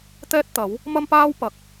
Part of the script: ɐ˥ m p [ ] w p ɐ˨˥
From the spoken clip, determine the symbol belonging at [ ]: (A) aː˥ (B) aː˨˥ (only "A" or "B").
A